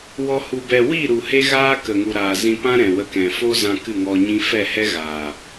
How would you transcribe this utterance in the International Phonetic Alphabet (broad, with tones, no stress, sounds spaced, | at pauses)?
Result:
w ɔ˧ h u˨ b ɛ˨ w i˦˨ ɾ u˨ h e˦ ɣ aː˦ k ə˨ ŋ u˨ ɾ a˨ z ĩ˧ p ã˦ ɾ ɛ̃˨ w ə˧ k ɛ̃˨ f o˦ z ã˧ k ɨ˦˨ ŋ ɔ˧ ɲ ĩ˦ f ɛ˦˨ h ɛ˦ ɣ aː˨